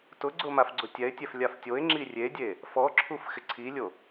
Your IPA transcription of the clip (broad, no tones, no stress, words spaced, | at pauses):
tʊɡ͡ǀʊ mafɡ͡ǀʊtʲɛɪ̯tʲɛf lʲaftʲoɪ̯ŋ͡ǁi rʲedʲe | fɔǁʰuf xɪǀʰilʲo